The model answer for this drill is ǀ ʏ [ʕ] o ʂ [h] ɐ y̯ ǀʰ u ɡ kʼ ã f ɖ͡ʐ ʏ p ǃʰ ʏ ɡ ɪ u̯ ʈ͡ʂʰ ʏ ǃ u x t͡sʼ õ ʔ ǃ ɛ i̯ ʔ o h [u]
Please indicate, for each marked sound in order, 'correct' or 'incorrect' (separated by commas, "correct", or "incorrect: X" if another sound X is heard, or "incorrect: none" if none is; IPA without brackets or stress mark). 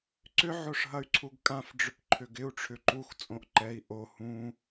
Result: correct, incorrect: ɦ, incorrect: ũ